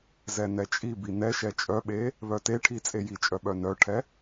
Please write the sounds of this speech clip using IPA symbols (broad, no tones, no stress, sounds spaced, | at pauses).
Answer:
z ɛ n ɛ t͡ʃʼ i b i n ɛ ʃ ɛ t͡ʃʼ œ ɓ e | β œ t e ʈʰ i t͡sʼ e j i t͡ʃʼ œ ɓ œ n œ ʈʰ ɛ